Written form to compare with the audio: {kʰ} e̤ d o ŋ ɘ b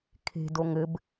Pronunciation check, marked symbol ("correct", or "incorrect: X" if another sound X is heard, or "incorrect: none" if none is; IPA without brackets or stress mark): correct